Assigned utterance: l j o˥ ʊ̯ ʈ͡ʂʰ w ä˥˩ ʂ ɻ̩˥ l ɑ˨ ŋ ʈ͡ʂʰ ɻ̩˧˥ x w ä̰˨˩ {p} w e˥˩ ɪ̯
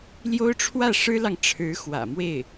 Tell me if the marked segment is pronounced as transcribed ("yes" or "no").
no